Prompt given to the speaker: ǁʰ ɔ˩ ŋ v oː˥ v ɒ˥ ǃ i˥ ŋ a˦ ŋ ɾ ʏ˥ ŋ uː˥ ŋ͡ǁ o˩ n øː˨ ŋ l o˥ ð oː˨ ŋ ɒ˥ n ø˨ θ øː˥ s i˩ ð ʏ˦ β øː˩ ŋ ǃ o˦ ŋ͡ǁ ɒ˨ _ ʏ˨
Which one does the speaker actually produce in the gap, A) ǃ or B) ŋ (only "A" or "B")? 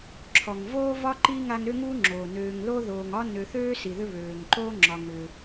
B